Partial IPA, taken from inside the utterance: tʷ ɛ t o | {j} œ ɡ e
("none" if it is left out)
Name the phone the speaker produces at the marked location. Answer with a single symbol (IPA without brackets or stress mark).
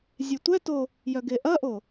j